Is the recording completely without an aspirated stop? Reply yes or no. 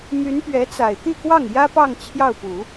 no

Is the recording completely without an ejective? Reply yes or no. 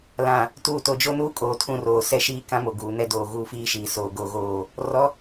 no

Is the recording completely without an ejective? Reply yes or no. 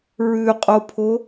no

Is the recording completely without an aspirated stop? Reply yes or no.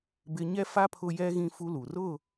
no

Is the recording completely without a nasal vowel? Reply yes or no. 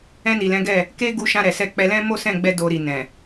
no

